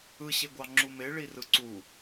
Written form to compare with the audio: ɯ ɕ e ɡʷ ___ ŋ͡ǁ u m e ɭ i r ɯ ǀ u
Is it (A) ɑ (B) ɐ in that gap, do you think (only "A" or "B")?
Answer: A